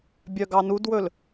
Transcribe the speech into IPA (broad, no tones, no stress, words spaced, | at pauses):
bʲœɡɑnudwɵl